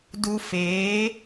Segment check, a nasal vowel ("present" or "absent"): absent